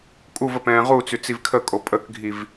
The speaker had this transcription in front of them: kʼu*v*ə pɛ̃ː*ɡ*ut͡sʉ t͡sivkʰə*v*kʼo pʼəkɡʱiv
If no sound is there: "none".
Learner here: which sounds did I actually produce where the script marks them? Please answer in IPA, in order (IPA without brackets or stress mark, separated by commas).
v, ʁ, none